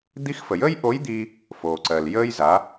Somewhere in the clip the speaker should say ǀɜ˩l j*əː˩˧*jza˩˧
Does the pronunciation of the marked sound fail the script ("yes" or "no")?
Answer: yes